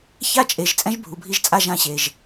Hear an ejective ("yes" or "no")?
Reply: yes